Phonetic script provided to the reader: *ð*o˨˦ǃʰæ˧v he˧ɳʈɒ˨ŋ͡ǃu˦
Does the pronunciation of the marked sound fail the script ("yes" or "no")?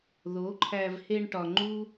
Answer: no